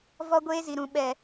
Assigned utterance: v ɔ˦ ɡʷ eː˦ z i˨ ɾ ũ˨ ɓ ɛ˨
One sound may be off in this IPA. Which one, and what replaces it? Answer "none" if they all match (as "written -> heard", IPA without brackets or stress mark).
none